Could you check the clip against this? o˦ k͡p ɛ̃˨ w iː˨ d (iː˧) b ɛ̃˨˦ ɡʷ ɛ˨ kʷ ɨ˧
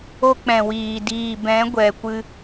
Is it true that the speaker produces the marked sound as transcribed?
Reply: yes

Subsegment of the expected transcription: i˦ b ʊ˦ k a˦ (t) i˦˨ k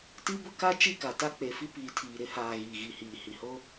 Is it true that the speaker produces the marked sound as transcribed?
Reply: no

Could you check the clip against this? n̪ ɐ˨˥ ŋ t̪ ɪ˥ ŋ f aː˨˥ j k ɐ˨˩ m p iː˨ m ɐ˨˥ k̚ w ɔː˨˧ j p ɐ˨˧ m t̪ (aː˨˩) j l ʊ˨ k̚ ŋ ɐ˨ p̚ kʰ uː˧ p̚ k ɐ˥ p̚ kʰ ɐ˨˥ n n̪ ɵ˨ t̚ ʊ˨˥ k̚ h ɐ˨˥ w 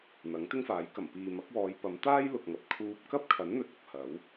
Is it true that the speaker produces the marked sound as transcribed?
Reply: no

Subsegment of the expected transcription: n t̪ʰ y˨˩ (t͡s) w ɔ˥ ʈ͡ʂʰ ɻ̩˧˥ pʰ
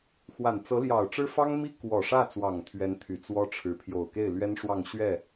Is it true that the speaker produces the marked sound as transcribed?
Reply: yes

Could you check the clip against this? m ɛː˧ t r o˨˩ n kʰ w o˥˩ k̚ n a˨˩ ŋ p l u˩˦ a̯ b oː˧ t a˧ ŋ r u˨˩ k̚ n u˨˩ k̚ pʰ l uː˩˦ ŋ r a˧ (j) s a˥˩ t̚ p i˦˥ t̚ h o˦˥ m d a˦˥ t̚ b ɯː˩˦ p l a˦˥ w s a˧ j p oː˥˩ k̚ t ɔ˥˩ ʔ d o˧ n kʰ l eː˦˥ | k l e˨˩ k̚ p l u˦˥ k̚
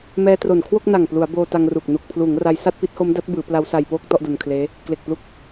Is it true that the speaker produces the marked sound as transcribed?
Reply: yes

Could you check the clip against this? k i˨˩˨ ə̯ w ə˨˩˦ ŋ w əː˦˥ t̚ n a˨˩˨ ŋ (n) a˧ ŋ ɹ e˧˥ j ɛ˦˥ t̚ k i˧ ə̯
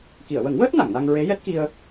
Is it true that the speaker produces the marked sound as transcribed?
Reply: yes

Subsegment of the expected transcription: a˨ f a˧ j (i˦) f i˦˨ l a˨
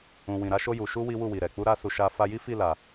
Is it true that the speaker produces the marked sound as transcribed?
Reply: yes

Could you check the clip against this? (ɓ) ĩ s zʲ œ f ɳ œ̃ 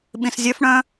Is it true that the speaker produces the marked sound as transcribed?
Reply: yes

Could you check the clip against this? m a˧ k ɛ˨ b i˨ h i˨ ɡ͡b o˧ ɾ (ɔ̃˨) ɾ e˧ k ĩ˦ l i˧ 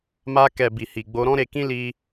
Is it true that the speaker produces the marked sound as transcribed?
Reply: no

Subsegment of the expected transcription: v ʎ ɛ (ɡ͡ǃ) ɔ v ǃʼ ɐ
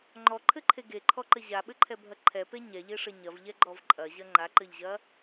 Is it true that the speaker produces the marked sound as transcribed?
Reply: yes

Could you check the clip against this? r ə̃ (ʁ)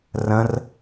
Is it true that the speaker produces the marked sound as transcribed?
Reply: no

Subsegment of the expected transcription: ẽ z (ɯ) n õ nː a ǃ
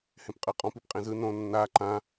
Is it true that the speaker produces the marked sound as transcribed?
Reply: yes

